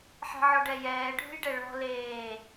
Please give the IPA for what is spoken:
ħ ɛ̤ ʕ ɔ ɖ ɛ j ɛː ɖʱ ṳ j ɖ ɛ ɭ ɔ̤ l eː

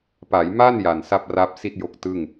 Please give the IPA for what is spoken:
p a˩˦ j m a˥˩ n j a˨˩ n s a˥˩ p̚ r a˦˥ p̚ s i˥˩ t̚ j o˦˥ k̚ t ɯ˥˩ ŋ

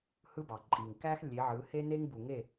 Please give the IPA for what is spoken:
h ɯ˦ b ɑ˨ ǃʼ i˨ ŋ k æ˦ x lʲ e˨˦ ʕ ɯ˨˦ h e˦ n e˦ ŋ b u˨ ŋ e˦˨

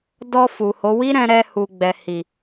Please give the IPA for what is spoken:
d ɔ˧ f u˨ h o˨˦ w i˦ ɾ ɛ̃˧ ɾ ɛ˧ h u˨ ɡ͡b ɛ˨ h i˨

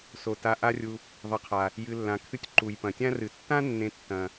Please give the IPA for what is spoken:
s o˩ t a˨ ʔ a˦ rʲ u˨ | ðˤ ɐ˨ qʰ a˩ | j ɨ˨ lː ã˨ kʰ ɨ˦ tʲ ǃ u˩ j p ɐ̃˩ tʲ ã˥ r ɨ˩ tː ã˥ nː ẽ˨ tː ɐ̃˩

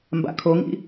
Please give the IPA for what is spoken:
m b a̰ kʰ o ŋ ḭ

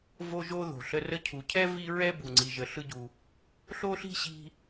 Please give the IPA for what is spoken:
v o˦ ʒ o˥ ð o̤˩ ɬ ə˦ r ə˦ cʰ u˨ cʰ ɛ˥ v i˦ ɹ ɛ˦ b u˩ ŋ͡ǀ i˨ ʒ ə˨ ɬ ɯ˦ ɟ u˨ | ɬ o˥ ɬ i̤˥ ɕ i̤˦

